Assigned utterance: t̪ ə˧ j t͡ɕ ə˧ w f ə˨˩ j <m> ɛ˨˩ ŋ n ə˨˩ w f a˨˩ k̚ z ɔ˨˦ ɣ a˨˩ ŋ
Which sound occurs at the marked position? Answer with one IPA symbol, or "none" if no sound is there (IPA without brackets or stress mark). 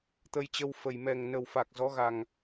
m